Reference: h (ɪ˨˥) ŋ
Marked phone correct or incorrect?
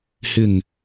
incorrect